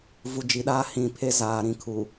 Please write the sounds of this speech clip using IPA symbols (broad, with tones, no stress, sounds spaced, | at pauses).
v u˨ d͡ʒ i˨ ɗ aː˦ h ĩ˨ pʰ e˦ z aː˨ ɾ ĩ˨˦ kʰ u˨